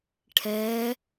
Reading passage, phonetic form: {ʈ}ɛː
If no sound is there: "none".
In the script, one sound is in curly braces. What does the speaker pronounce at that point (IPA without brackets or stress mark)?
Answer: ʈʰ